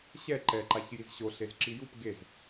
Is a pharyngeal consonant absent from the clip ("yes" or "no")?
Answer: yes